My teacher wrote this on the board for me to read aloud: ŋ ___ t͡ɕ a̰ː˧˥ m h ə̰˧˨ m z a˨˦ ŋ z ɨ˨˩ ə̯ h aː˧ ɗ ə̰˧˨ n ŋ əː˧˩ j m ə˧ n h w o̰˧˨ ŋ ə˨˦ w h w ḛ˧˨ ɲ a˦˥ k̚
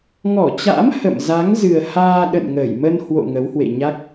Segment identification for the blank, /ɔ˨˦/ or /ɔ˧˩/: ɔ˧˩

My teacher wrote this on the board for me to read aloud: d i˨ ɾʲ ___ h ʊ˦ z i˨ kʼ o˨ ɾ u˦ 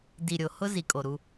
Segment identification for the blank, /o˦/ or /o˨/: o˨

